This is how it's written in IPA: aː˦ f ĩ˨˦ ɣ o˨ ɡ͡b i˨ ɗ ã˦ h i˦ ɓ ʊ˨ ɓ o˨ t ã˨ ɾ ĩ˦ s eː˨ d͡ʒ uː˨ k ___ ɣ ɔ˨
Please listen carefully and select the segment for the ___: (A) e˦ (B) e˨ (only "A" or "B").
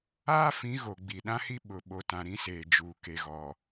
B